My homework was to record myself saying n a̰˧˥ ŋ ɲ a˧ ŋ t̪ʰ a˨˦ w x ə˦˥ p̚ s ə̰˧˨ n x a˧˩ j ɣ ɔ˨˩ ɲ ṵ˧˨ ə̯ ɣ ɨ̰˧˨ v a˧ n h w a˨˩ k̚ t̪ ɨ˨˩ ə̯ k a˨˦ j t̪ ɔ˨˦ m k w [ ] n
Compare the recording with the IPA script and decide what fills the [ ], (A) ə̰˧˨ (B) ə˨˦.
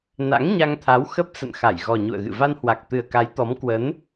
B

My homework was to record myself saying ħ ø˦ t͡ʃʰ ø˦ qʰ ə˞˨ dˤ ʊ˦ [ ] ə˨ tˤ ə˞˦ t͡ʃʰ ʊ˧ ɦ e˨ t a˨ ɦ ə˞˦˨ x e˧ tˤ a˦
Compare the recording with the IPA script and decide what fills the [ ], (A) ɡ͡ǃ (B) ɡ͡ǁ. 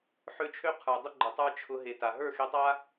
A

